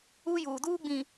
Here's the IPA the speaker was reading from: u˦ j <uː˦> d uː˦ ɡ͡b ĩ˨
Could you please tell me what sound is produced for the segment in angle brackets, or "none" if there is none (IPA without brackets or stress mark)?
uː˨